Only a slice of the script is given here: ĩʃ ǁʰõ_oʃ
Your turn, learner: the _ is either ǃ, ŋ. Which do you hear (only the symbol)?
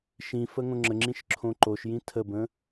ǃ